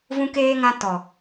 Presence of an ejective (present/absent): absent